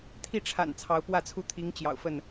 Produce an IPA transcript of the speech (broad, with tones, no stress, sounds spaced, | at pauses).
t̪ʰ i˥˨ ʈ͡ʂʰ a̰˨˩ n t͡sʰ ɑ˨˦ ʊ̯ p w ä˥˨ t͡sʰ u˦ t̪ʰ i˨˦ ŋ t͡ɕ j ɑ̰˨˩ ʊ̯ f ə˥˨ n